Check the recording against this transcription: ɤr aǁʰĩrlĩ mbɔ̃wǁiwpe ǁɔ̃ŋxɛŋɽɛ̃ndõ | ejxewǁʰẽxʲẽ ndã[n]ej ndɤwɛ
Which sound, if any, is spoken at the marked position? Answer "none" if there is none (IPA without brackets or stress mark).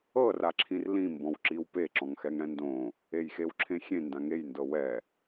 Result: ŋ